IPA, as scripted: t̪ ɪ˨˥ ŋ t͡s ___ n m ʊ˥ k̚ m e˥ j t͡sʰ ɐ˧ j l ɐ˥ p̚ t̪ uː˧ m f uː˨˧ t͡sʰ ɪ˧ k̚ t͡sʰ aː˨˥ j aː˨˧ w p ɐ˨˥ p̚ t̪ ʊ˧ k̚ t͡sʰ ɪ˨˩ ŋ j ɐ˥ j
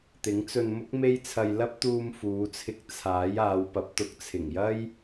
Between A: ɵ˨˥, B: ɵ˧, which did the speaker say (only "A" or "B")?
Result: B